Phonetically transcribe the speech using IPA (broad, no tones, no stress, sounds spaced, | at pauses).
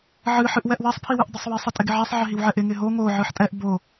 ʕ ɨ ħ ɨ ʔ w ɛ ʔ w ɛ sˤ pʰ i w ɨ ʔ dˤ ɪ sˤ w i sˤ ɨ tʼ ɪ ɡ ɪ ʕ ɛ sˤ ʕ ɪ ɦ i w ʕ ɛ ʔ ɪ ŋ ɪ ɦ o ŋ o ʕ ɨ ħ tʼ ɛ ʔ b o